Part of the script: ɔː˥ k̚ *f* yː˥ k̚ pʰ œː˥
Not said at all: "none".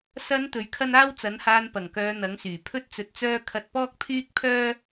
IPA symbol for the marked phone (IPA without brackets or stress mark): pʰ